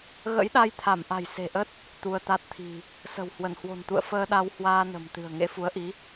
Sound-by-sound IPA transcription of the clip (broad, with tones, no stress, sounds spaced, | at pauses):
ɣ ə̰˧˥ j ɗ a˧ j t̪ʰ a˧˩ m ʔ a̤˨˩ j s e̤˨˩ ʔ ə˦˥ t̚ | t̪ u˧ ə̯ t̪ a˦˥ t̚ t̪ʰ i̤˨˩ | s ə̤˨˩ w h w ə˧˩ n h w o̤˨˩ n t̪ ṵ˧˨ ə̯ f əː˧ ɗ a˧ w h w aː˧ n ə̤˨˩ m t̪ ɨ̤˨˩ ə̯ ŋ ḛ˧˥ f u˨˦ ə̯ ʔ i˨˦